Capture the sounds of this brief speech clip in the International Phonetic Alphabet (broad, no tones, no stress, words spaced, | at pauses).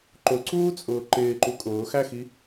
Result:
ǃʊǀuːt͡sʼʊː ǃɪːǃu kʼʊːxæxi